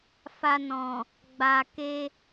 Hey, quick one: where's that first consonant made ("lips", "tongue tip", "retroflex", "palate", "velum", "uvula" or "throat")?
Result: lips